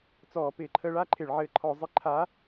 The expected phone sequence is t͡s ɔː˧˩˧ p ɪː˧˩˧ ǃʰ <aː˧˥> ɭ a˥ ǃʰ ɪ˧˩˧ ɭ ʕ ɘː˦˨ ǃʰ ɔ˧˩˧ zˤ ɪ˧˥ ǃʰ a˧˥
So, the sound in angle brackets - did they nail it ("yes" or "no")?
no